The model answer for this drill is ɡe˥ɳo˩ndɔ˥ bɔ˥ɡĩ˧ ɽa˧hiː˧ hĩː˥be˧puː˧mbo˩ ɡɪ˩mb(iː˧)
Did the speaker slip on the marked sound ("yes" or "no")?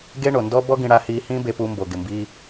no